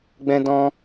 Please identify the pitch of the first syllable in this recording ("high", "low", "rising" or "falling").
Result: high